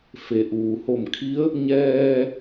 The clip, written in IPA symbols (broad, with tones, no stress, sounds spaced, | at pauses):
f e˩ ʔ uː˩ h o˧˩ m kʰ i˧˥ ə̯ | ɲ ɛː˧